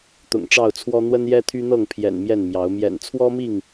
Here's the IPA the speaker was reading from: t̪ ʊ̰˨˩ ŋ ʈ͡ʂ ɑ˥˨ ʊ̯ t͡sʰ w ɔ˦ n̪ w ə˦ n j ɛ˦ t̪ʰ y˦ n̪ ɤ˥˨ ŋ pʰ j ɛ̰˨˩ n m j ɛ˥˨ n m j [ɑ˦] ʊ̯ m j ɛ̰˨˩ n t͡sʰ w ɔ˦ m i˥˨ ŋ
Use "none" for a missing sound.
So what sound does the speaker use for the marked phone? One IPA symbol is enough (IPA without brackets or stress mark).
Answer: ɑ˨˦